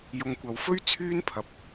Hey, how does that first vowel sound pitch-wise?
low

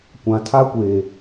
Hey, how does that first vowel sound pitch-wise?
low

